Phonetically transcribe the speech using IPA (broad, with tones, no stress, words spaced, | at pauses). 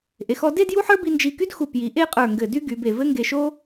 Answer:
ʔe˩˧xɔ˥˧ de˥˧d ju˥ħə˞˥ bi˧nd͡ʒi˧˩ky˥d xu˧˩pji˩˧ ʔe˥˧qʼə˞˧˩ ŋɡɘ˧˩dy˥ ɡy˩˧be˧˩ vɘ˥ŋɡe˧ʃo˥